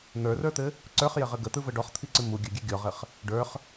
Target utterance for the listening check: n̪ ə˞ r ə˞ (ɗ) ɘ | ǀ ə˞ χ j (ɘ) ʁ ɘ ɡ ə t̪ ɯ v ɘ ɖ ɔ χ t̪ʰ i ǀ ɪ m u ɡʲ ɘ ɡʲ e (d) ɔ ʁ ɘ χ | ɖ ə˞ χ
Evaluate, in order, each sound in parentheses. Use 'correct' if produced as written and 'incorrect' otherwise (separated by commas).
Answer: incorrect, correct, incorrect